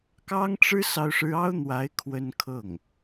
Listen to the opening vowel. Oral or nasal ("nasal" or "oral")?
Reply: oral